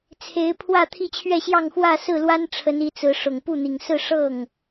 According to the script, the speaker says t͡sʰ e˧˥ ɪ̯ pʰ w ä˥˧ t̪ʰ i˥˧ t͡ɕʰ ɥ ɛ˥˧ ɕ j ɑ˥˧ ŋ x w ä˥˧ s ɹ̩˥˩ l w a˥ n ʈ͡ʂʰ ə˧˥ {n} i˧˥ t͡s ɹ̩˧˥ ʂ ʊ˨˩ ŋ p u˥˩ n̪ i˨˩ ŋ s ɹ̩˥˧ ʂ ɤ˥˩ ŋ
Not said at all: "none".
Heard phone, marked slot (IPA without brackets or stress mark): n